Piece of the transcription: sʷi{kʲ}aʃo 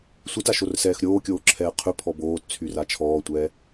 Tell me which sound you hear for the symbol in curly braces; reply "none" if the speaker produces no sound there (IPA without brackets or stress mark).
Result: t